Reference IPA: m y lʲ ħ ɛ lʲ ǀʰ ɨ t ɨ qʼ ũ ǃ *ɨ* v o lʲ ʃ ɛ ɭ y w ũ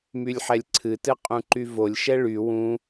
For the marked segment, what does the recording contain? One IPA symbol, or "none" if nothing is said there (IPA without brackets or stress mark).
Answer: y